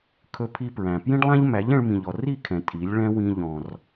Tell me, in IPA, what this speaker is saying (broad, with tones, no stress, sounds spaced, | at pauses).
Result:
kʰ ɵ˧ pʰ i˧ p ɹ æ̃˨ p j ĩ˦ ɖ lˠ æ̃˦ ʎ m æ˨˦ ʎ ɛ̃˧ ɭ m ĩ˨ ʎ ɔ˨ r i˦˨ kʰ ɛ̃˨ tʼ i˨˦ lʲ ɭ ɛ̃˦ w ĩ˧ ʎ ɔ̃˨ r